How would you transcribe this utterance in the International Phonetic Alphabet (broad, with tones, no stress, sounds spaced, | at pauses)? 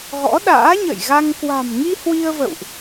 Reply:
ɣ ɔ̰˧˥ ɗ a̰ː˧˥ ɲ ə̰˧˨ j ɣ a˧ ŋ k w a̤˨˩ m ŋ i˧ h w i˧ ə̯ v ə̰˧˨ w ʔ